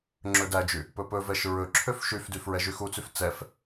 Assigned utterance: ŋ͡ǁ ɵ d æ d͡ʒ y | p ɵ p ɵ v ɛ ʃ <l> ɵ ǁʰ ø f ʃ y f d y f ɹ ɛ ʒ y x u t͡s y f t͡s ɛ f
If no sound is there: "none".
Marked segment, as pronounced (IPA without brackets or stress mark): ɹ